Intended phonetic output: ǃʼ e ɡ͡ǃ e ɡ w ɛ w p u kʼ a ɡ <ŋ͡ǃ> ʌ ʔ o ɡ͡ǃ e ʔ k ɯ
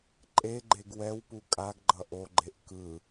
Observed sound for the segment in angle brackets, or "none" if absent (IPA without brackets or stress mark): ɡ͡ǃ